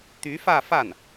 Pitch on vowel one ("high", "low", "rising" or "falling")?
rising